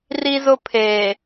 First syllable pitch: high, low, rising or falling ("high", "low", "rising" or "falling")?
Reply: high